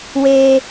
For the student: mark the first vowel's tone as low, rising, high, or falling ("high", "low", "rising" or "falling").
high